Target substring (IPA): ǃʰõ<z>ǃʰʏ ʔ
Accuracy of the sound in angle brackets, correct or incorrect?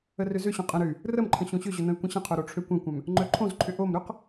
correct